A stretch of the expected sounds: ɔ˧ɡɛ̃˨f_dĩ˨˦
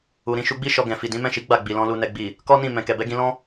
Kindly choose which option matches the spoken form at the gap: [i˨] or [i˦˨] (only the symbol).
i˨